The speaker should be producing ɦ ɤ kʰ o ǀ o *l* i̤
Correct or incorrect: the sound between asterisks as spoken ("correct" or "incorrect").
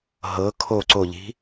incorrect